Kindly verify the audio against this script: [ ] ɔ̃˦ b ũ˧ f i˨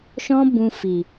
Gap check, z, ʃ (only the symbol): ʃ